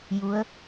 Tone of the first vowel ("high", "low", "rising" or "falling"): rising